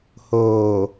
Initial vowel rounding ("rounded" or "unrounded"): rounded